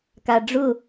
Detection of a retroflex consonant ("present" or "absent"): present